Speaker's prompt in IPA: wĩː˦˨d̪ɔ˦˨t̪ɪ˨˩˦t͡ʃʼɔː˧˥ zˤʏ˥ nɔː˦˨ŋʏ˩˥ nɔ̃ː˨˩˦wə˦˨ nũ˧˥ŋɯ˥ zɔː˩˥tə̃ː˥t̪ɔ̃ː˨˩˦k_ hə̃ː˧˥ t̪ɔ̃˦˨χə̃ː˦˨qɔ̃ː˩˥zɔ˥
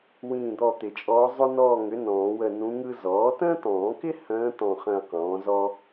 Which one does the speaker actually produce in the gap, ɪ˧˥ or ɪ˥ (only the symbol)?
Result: ɪ˥